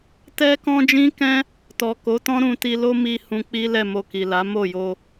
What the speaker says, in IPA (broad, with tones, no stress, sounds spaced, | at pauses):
t ɛ˦ k ɔ̃˦ d͡ʒ ĩ˦ k ɛ̃˦ | t ɔ˨ k o˨˦ t ɔ̃˦ ɾ ũ˧ t i˧ l o˦ m i˧ h ũ˧ k͡p i˦ l ɛ˦˨ m o˧ k i˨ l a˨˦ m o˦˨ j o˧